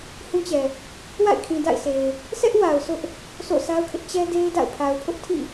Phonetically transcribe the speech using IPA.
h ũ˦ t͡ɕ ɛ˨ | w a̰˦˨ ɪ̯ kʰ ĩ˨ d a̰˦˨ ɪ̯ s e˨ ɪ̯ | sʰ ɛ˦ ʔ w a˨ ʊ̯ s ʊ˦ ʔ | s o̰˦˨ sʰ a˦ ʊ̯ kʰ ɪ˦ ʔ t͡ɕ ɛ˦ d e˦ ɪ̯ d a̰˦˨ ʊ̯ pʰ a˨ ʊ̯ pʰ ʊ˦ ʔ tʰ ḭ˦˨

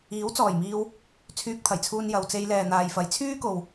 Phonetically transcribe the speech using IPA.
iː˨˥ w t͡s ɔː˨˩ j m iː˧ w | t͡sʰ yː˧ k̚ t̪ʰ ɐ˨˩ j t͡sʰ uː˧ n j ɐ˨ w t͡s e˧ j l ɛː˨ n̪ aː˨ j f ɐ˨˧ j t͡sʰ yː˥ k o˨ w

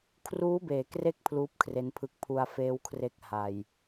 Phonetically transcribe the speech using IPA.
kʰ r uː˦˥ b eː˩˦ k r e˦˥ k̚ pʰ l uː˦˥ p̚ kʰ r e˦˥ n pʰ ɯ˦˥ k̚ pʰ u˧ a̯ f eː˦˥ w kʰ r e˦˥ k̚ h a˨˩ j

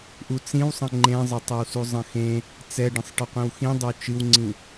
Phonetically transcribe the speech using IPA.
ʔ u t͡s ĩ w sˤ ə̃ ŋ͡ǃ ẽ zˤ ə tˤ ə w s u zˤ ə̃ x ẽ | t͡s ɛ ɖ ə̃ sˤ ʈ ə qʷ ĩ w x ĩ dˤ ə w t͡ʃ ɨ w ŋ͡ǀ ĩ

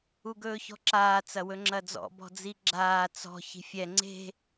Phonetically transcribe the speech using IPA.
u ɡ ɵː ç ɔ̤ ǁ aː t͡s ɐ w ɵ ŋ͡ǁ ɐ d͡z ɔ̰ b ɔ̤ d͡z i ɡ͡ǁ aː t͡s ɔ̤ ç i̤ fʲ ɛ ŋ͡ǀ e̤

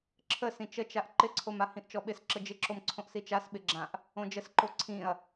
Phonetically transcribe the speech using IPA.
ǁʰ ə s ĩ t͡ʃ ə t͡ʃ a ʔ ǃ ɪ ǀʰ o m a h ĩ ʔ t͡ʃ ɔ ɓ ɪ s ǁ ə d͡ʒ ɪ ǁ o m ǀʰ õ ʔ s i t͡ʃ a s ɓ ɪ ɡ͡ǁ ã ʔ | õ d͡ʒ ə s ǃ o ǀʰ ĩ ɐ̯

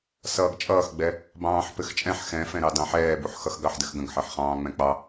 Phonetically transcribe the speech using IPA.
s ʌː ɡ t͡ʃʼ ʌː x ɡ͡b ɛ | b ɑ̃ː ħ p ɘ x t͡ʃʼ ɛ̃ ħ x ɛ̃ f ɛ̃ ɾ ɑ d ɑ̃ ħ ɛː b u ħ x ʌ x ɡ ɑ ħ d ɘ x ɡ ə̃ ɡ ħ ɜ ħ χ ɑ̃ː ŋ͡m ɛ̃ k͡p ɑ

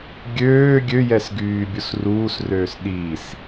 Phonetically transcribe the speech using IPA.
ɡʲ øː ɡʲ ø j ɛ s ɡ yː bʲ u s r uː s r øː s ɗ i s

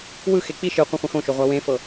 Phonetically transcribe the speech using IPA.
w ɯ x e k͡p i ʃ ɯ qʷ ã χʷ ɛ̃ x õ ʃ o ʁʷ a w ẽ f ɤ

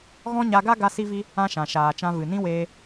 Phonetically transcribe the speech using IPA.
ɣ ɔ̃˦ ɲ a˧ ɡ a˦ ɡ a˦ s i˦ v i˦ | ã˦ ʃ ã˨ ʃ aː˨ t͡ʃ ã˧ v ɨ˨ n ĩ˦ w eː˧

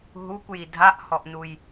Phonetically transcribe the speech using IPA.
ɦ u kʷ j i dʱ a ʔ h ɔ ʔ n u j

